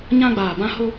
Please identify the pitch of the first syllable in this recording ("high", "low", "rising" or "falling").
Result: high